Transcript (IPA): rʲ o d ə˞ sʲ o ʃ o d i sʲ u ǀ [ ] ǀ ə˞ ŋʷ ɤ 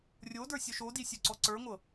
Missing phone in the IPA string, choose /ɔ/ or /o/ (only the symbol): ɔ